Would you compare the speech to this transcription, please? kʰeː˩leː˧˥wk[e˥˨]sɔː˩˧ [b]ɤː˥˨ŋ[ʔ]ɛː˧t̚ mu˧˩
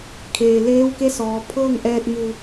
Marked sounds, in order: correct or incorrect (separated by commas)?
incorrect, incorrect, correct